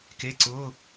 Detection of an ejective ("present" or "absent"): absent